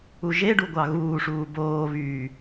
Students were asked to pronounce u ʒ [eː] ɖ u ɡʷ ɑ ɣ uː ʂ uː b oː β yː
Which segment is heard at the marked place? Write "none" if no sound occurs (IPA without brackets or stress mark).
e